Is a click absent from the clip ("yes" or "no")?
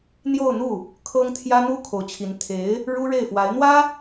yes